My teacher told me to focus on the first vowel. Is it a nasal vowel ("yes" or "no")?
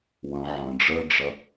yes